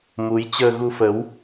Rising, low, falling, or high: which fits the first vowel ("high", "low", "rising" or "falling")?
rising